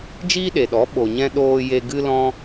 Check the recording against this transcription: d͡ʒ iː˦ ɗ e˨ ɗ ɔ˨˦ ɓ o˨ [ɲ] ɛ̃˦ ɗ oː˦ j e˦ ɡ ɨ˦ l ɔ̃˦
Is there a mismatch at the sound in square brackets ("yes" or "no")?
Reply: no